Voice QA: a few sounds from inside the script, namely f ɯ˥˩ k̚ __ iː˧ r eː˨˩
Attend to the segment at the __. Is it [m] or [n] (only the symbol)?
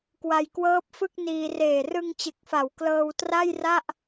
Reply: n